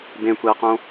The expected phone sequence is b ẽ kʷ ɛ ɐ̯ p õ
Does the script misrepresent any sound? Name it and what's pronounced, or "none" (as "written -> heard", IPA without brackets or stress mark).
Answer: p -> q